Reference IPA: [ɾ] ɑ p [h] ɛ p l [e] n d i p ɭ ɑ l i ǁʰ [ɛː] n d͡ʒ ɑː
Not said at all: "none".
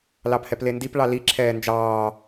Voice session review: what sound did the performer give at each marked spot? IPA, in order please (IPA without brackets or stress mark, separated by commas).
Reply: l, h, e, ɛː